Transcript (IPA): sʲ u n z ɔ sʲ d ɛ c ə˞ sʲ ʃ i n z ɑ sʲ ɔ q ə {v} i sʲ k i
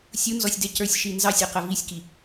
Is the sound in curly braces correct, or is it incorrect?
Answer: correct